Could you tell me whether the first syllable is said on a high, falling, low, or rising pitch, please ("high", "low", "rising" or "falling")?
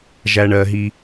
low